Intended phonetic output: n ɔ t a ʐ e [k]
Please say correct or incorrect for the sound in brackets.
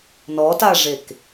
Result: correct